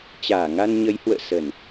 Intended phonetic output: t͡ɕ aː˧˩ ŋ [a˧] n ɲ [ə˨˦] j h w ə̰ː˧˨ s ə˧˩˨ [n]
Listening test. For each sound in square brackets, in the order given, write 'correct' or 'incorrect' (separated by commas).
correct, correct, correct